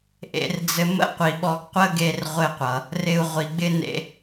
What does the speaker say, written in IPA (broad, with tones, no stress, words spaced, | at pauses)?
ʔḛ˧rd͡zɘ˧ mə̰˥qʷi˩ ɓɔ˧ɡqʷə˥ ɡe˧rʁʷɘ˧qʷʌ˩ | rɪ˧u̯ʁʷi˩ɡ͡bɪ˥ nḛ˥